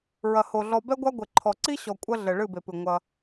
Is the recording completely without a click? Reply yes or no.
no